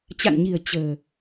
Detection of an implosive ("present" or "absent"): absent